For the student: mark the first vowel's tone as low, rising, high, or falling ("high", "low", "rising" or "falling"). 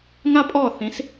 high